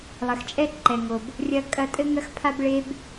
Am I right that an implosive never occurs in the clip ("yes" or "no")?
yes